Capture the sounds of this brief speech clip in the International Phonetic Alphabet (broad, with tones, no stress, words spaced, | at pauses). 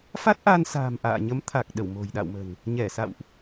fa˦˥t̚ʔaː˧nsa̤ː˨˩m ʔa̰ː˧˨ ɲə˨˦m t̪ʰa˨˩k̚ ɗə˧˩wmo̤˨˩jɗa̰˧˨wmə̤˨˩n | ɲɛ˧˩sa̰˧˨wʔ